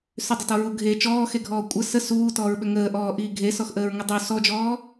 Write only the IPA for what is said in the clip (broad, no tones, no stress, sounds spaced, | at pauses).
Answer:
s ʏ dˤ ə t ɔ ɹ u ɡʱ e t͡ʃ ɔː x e ɡʱ ɔː kʷʼ ə s ə s uː t ɔː ɹ ɓ ʏ ŋ əː ʔ ɔː ʔ iː ɡʱ e s ɔ x ʔ əː ɹ ŋ ə dˤ u s ɔ d͡ʒ ɔː